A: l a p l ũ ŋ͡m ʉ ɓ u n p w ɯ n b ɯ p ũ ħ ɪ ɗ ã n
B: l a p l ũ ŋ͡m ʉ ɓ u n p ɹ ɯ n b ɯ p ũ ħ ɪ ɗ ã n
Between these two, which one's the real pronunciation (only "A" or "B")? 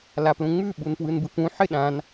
A